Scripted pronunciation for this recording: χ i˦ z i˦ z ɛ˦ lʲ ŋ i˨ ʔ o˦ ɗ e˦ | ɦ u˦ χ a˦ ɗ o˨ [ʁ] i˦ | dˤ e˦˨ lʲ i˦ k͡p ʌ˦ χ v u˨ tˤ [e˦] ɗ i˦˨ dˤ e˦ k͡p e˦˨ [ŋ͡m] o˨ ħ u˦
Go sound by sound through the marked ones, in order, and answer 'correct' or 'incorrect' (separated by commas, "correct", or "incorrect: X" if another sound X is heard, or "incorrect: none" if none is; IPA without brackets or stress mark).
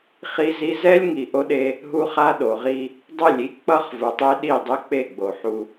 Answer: correct, correct, incorrect: ɡ͡b